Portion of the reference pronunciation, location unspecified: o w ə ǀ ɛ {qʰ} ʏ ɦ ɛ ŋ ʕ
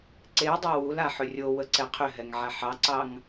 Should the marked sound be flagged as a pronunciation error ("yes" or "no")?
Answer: no